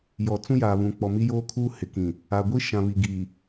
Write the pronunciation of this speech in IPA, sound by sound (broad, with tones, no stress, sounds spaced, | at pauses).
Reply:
j ɔ˨ t͡s ũ˦ j aː˨ β ũ˨ k͡p ɔ˨ m i˦ j oː˦ kʰ uː˦ h ɪ˨ k ĩ˨ | a˨ ɡʷ i˦ ʃ ã˨ β i˨ ɡ i˨